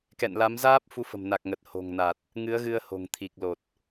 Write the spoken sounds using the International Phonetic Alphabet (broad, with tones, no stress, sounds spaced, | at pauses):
k ɛ̰˧˨ n l a˨˦ m z aː˦˥ p̚ f u˨˦ f ə̤˨˩ m n a˨˩ k̚ ŋ ə˨˩ t̚ h o̤˨˩ ŋ n a˨˩ t̚ | ŋ ɨ˨˦ ə̯ ɣ ɨ˧ ə̯ h o̤˨˩ ŋ t̪ʰ i˨˩ k̚ l o˨˩ t̚